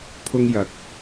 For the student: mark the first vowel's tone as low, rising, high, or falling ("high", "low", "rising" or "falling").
high